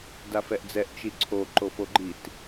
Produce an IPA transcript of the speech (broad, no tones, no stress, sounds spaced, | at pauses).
d a f ɛ ʔ d͡z ɛ ʔ t͡ʃ i ǀʰ o ǃ o f o ɡ͡ǃ i t